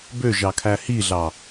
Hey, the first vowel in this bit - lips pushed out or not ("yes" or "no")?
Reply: yes